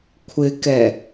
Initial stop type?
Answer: aspirated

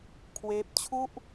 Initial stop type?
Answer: aspirated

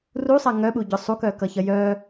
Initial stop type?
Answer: implosive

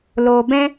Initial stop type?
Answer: plain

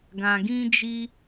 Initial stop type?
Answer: plain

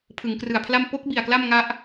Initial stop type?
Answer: aspirated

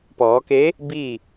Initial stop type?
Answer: plain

